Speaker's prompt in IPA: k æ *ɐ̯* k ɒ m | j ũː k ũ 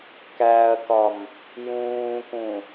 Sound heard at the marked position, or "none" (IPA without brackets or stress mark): ɐ̯